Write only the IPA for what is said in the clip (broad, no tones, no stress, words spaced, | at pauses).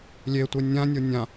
lʲetʷe nʲãnʲo nʲã